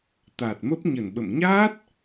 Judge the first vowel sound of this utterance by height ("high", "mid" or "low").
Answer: low